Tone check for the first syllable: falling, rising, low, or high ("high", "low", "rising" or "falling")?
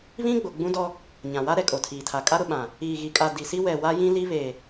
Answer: high